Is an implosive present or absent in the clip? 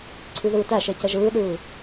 present